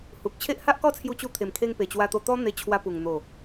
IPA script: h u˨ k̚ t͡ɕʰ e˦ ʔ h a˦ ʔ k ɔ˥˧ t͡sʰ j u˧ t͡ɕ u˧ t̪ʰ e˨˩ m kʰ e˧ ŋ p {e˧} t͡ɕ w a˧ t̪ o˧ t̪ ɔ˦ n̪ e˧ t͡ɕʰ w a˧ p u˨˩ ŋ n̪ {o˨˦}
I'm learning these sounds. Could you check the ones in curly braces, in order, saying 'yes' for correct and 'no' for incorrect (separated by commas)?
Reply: no, no